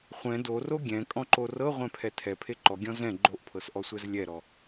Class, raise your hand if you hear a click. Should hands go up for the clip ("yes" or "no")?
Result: yes